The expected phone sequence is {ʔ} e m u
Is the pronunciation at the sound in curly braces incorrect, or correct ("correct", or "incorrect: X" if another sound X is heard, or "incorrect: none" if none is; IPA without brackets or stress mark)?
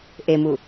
correct